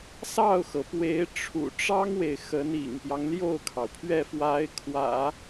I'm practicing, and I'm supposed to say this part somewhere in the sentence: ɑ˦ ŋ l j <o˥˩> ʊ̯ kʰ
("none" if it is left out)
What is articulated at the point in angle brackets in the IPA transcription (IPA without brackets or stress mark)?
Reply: o˥˩